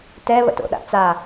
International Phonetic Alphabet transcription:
t ɛ β ə̰ t o̰ ɗ a̰ t͡s a

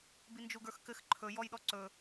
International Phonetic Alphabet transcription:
b i n d͡ʒ u ɡ ə˞ x k ɘ x ǃʰ ɵ j ɔ j ɗ ɔ ǀ ɵ

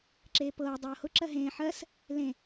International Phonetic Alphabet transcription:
ǁ eː p ɤː dˤ ɤː h ʊ ǁ ɜ ɦ ẽː ħ ɜ s | l ẽ

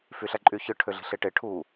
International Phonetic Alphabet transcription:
f y ɬ æ ǃʼ y ç ɯ ʈʰ ø ɮ i̤ ɬ e ʈ e ʈʰ u

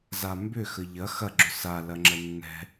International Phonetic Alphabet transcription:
z a m b ʏ x ə ʎ ɐ x ɐ ɡ͡ǁ ʏ s a l ɐ ŋ͡ǁ ə nː ɛ̤

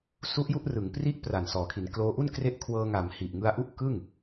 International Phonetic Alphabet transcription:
s u˦˥ ʔ j u˥˩ ʔ r ɯ˩˦ ŋ p r i˦˥ ʔ p r a˨˩ n s ɔː˩˦ kʰ i˩˦ n k l oː˦˥ ʔ u˥˩ n k r e˦˥ ʔ kʰ w ɤː˧ ŋ a˩˦ m h i˨˩ ʔ ŋ ɯ˧ a̯ ʔ u˦˥ ʔ k ɯ˥˩ ŋ

